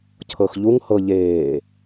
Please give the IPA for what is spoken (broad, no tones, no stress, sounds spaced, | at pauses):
cʰ ɤ x ʎ u ŋ h ɤ ʎ eː